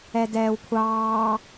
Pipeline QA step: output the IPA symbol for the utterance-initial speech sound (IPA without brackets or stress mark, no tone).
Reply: ɛ